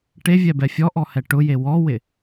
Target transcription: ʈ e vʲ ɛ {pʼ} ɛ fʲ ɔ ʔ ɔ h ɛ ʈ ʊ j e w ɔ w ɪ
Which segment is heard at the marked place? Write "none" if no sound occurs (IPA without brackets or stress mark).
b